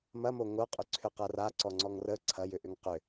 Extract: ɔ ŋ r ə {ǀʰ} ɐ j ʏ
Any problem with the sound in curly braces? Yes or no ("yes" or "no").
no